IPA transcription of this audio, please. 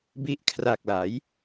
bi˦˥ʔkʰra˨˩k̚la˩˦j

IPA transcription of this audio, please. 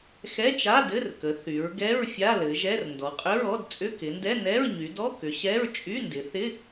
xɛ˧˥˧t͡ʃa˧˥˧dɘ˧˥˧rkə˩˧ θy˩˧ɹ ɡɛ˧˥˧ɹ fʲa˧˥˧lɘ˩˧ʒɛ˧˥˧r ndɔ˩˧qʼʏ˧˥˧ɹɔ˧˥˧d t͡sʼʏ˧˥˧kɪ˩˧ndɛ˧˥˧ nɛ˧˥˧ɹɲy˩˧dɔ˧˥˧ kʏ˩˧ɕɛ˧˥˧ɹ t͡ʃʼy˧˥˧ndɪ˩˧θɪ˧˥˧

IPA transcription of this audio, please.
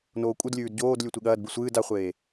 noːkʷʼɨdlʲʉːd ɟoːd lʲʉtʷiɠɐːdbɨ sʷɨːd aχʷeː

